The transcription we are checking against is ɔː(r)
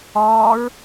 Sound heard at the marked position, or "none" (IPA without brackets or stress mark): ɹ